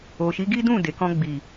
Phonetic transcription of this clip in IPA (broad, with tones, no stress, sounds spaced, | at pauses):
o˨ ʃ i˨˦ ɡ i˦ d ũ˦˨ d e˨ k ɔ̃˧ ɡ͡b i˨